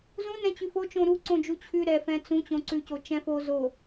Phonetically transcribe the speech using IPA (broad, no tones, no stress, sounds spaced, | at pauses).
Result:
z ũ n ɛ̃ t͡ɕ ʉ f o t͡ʃ õ ɾ u ǀ õ d͡ʒ u t͡ɕʰ ʉ ɾ ɛ f ɛ̃ t͡s ũ t͡ɕ õ ǀ ʉ c o t͡ʃ ɛ̃ f o z o